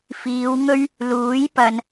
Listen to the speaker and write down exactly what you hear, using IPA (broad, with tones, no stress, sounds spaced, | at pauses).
f iː˨˧ w ŋ ɵ˥ ɥ | l uː˨˥ j p ɐ˧ n